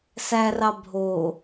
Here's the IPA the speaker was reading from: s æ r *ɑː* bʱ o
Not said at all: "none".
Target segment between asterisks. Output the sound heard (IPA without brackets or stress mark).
ɑ